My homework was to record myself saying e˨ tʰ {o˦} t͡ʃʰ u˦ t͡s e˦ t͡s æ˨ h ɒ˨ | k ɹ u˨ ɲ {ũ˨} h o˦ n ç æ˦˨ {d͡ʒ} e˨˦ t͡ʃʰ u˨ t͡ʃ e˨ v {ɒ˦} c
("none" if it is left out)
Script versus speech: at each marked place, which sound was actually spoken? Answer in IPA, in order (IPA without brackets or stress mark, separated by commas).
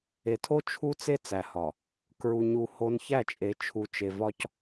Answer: o˦, u˨, t͡ʃʼ, ɒ˦